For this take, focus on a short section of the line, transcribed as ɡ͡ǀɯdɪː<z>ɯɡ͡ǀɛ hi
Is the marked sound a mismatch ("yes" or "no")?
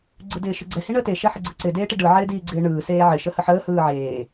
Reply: yes